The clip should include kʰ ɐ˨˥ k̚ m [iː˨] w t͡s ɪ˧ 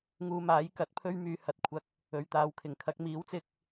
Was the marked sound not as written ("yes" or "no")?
yes